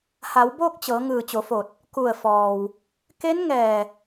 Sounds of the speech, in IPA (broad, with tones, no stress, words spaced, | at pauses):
ha˩˧wboː˥˨k̚t͡ɕɤː˩˧ ŋɯː˧˩t͡ɕo˩˧fo˧˩t̚ | ku˧˩ə̯fɔː˩w | ke˧˥n ŋɛː˧˩